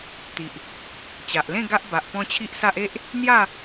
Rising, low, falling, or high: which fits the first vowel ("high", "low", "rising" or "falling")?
low